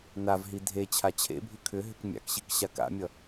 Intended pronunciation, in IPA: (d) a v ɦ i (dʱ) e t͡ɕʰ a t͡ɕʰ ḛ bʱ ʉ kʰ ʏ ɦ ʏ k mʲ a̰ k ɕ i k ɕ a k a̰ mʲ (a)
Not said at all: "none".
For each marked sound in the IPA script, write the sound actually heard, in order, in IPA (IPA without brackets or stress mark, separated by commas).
n, dʱ, ʌ